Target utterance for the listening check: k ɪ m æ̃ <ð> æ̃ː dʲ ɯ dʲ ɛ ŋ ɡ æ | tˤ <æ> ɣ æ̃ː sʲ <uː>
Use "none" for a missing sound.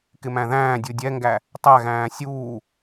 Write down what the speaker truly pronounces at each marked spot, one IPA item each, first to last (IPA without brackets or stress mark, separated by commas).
ð, æ, uː